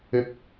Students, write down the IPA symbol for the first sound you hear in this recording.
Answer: ɪ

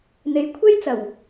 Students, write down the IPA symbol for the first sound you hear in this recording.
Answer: n̪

